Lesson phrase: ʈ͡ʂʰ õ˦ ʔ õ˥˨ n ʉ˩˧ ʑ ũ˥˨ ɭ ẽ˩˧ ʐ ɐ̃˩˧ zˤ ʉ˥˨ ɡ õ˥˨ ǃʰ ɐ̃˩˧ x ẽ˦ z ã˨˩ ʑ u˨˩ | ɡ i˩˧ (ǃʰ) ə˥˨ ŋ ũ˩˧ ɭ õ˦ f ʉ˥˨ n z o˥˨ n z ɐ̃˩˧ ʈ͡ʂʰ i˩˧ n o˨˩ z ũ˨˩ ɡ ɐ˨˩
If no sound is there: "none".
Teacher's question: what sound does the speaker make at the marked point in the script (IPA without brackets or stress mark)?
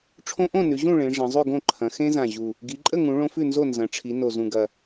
ǃʼ